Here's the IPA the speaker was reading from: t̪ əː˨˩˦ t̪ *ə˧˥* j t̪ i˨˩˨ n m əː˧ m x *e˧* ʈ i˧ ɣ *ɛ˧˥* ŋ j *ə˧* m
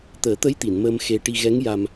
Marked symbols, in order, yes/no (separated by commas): yes, yes, yes, no